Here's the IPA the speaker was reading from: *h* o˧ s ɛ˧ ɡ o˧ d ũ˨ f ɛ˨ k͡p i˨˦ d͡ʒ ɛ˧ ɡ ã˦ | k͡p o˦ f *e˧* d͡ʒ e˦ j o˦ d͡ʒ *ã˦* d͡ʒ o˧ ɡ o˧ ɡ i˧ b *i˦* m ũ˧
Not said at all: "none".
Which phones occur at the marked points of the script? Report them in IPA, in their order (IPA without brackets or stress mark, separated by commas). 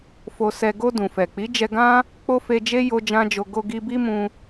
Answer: f, e˧, ã˦, i˦